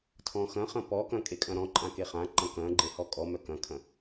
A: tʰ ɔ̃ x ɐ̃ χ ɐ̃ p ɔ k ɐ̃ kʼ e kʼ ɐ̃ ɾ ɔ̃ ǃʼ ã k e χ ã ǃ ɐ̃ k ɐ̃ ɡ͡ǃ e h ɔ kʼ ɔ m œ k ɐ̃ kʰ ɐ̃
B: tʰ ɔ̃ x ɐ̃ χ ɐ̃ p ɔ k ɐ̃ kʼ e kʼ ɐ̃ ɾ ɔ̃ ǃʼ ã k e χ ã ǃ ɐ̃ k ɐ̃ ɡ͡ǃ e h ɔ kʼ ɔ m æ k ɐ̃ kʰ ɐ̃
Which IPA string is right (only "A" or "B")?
A